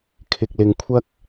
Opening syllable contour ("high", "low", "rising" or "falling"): low